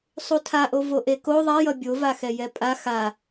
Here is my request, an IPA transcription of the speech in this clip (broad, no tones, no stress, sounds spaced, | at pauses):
sˤ u tʰ a ʔ o v o ʔ e k o ðˤ a j ʌ bʲ o v a x ɛ j ɛ pʼ a x a